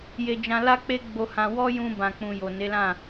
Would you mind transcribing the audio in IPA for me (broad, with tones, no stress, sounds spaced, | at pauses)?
j e˧ d͡ʒ ã˧ l a˦ k͡p e˦ ɡ͡b o˧ h ã˧ w ɔ˦ j ũ˧ b ã˨ k͡p ũ˨ j o˨ n e˨˦ l ã˦˨